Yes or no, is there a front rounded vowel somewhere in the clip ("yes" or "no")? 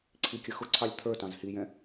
no